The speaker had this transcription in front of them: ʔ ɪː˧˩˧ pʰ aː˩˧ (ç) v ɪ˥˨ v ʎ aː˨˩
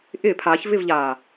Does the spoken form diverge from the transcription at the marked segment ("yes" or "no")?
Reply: no